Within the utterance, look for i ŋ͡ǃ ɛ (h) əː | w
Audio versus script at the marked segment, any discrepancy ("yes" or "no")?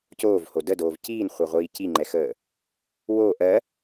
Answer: yes